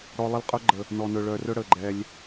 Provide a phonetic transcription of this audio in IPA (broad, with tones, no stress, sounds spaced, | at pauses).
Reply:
ɽ ɔ˧ lˠ ə˦˨ l qʼ œ˦ ɡ͡ǃ ə˨ | n ɔ˨ n ɵ˨ ɭ œ˨ r ɵ˦ ɽ ə˨ ɡ͡ǃ ɛ˧ lʲ